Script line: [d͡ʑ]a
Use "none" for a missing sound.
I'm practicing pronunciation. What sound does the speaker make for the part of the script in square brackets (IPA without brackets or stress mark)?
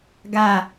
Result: ɡ